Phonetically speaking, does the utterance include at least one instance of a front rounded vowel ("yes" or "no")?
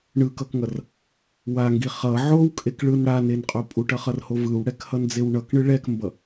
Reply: no